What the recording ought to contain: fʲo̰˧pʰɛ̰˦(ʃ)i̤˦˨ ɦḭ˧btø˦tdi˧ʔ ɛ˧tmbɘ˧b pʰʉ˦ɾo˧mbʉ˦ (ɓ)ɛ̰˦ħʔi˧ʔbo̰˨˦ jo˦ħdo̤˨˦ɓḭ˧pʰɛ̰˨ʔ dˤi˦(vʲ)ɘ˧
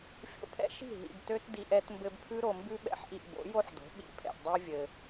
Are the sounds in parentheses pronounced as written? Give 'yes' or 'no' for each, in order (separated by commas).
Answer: yes, yes, yes